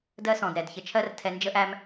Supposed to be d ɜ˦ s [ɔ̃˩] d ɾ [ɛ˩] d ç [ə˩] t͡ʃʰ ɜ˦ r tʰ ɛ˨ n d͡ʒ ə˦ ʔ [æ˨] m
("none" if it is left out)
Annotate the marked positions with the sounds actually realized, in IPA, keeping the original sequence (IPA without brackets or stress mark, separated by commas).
ɔ̃˩, ɛ˩, ə˨, æ˦